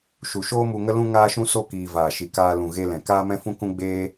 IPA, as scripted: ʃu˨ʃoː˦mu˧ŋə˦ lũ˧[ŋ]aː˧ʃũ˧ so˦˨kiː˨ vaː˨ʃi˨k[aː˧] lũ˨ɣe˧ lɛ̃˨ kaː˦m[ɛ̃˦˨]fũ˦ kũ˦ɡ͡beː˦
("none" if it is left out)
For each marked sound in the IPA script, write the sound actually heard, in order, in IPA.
ŋ, aː˧, ɛ̃˦

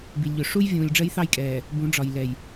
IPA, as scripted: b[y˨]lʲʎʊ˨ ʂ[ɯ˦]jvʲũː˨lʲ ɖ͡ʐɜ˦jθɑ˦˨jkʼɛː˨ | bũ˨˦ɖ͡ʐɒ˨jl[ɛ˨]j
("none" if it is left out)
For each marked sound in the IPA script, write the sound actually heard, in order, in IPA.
i˨, u˦, ɛ˨

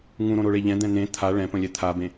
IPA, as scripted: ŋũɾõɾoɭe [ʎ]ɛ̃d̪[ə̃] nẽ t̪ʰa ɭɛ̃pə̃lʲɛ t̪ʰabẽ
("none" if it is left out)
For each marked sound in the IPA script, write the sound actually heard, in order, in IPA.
ʎ, ɛ̃

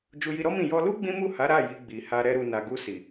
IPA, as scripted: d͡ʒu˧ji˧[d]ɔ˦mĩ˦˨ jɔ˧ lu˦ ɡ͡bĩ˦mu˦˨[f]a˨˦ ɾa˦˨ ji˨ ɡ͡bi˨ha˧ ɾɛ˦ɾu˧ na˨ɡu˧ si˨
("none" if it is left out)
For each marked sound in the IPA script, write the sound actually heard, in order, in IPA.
ɾ, h

